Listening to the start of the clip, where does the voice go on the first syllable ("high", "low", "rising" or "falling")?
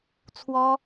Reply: high